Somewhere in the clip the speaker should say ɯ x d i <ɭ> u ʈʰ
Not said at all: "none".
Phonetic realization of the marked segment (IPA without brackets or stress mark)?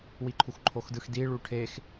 ɭ